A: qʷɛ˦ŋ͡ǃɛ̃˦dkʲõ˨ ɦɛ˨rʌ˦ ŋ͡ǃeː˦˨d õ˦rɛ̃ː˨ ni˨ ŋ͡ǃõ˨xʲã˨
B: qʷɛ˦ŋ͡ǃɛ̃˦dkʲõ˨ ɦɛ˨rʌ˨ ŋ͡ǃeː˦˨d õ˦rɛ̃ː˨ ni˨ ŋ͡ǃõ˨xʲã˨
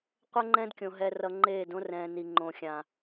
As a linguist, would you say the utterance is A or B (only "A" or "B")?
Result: B